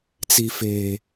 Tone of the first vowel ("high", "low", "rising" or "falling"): low